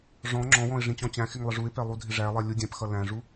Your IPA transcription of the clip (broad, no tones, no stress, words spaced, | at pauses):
ʐɔ̃ ŋ͡ǁɔ̃wɔ̃ɪ̯ ʐĩt͡ɕɔ̃t͡ɕæ̃xɪŋ lˠɪʐuɪ̯pɛ lˠudʱɪʐælˠɛ lʲudʲɛ̃pxʌ læ̃ʐu